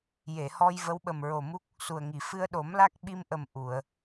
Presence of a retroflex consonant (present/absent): absent